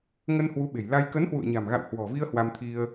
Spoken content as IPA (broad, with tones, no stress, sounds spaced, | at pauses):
ŋ ə˧ n h w u˨˦ ɓ e̤˨˩ j l a˧ j k ə˨˦ n h w ṵ˧˨ ə̯ ɲ a̤˨˩ m ɣ a̰˧˨ w h w ɔ̤˨˩ v i˧ ə̯ h w a˧ m t̪ʰ i˧ ə̯